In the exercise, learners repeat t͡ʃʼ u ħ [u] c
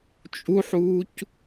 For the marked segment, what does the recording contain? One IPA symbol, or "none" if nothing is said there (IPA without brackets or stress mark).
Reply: uː